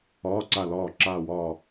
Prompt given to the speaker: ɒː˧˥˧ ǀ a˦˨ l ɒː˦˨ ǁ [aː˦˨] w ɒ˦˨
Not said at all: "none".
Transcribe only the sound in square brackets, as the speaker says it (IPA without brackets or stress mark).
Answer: aː˦˨